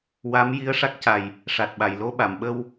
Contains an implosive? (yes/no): yes